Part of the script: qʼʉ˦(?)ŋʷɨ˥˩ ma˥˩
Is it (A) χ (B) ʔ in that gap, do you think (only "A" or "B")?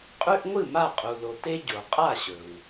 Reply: B